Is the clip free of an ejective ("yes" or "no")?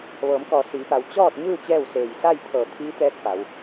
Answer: yes